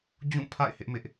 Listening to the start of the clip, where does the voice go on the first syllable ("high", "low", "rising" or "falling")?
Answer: falling